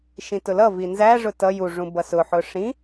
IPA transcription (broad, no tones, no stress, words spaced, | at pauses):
ʃĩtʊlʌvi nzæ ʐʊtʌ juʐũ bʌsʊħʊ ʂĩ